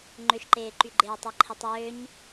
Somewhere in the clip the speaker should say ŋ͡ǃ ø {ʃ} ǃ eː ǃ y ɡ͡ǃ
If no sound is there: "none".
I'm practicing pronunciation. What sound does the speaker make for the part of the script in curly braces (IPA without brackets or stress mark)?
ʃ